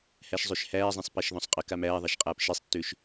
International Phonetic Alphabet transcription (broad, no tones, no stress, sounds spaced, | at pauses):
h æ ʃ zˤ ø ʃ h æː zˤ ẽ sˤ p a ʃ ð ɔ̃ sˤ qʼ ə k a m æː ðˤ a ʃ qʼ aː p ʃ i sˤ tː ø ʃ